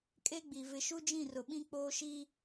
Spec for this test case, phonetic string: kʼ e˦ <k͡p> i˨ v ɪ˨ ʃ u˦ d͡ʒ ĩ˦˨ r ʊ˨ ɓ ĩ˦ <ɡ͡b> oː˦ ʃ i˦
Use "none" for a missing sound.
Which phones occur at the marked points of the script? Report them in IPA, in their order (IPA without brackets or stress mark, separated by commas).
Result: ɡ͡b, k͡p